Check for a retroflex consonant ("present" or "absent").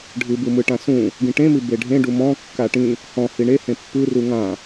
present